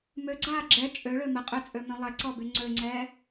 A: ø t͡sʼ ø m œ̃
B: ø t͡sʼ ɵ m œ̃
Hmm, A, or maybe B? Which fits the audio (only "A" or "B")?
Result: A